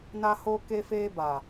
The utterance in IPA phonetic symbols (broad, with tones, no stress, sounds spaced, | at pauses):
n a˦ h o˦ k e˦ f eː˦ b a˨